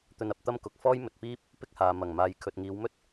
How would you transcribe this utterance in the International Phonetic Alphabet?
t̪ ɵ˧ n ɐ˨˥ p̚ t̪ ɐ˥ m k ʊ˨ k̚ f ɔː˥ j m ɵ˨ t̚ p iː˥ p̚ | p ɪ˥ k̚ h aː˨ m ɐ˨˩ ŋ m aː˨ j kʰ ɵ˨ t̚ ŋ iː˨˧ w m ɵ˥ t̚

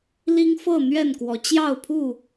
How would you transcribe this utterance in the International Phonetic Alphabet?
l i˦ ŋ f ɤ˥˨ n̪ ɥ ɛ˥˨ n k w ɔ˨˦ t͡ɕ j ɑ˥˨ ʊ̯ pʰ u˥˨

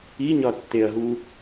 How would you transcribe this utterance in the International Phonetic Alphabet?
i ɲ ɒ tː e ɐ̯ ɦ u

